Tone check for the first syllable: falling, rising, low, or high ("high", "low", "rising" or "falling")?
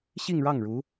falling